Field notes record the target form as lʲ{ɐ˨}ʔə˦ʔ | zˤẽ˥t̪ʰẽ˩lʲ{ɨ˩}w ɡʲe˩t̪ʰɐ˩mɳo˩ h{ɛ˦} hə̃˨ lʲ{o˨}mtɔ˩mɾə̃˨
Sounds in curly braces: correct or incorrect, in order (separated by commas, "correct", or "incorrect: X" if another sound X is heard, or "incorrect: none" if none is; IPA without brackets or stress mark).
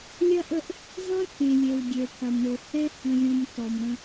incorrect: ɐ˥, incorrect: e˩, correct, incorrect: õ˨